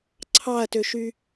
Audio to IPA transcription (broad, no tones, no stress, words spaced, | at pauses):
ǀʰɑɐ̯tøʃy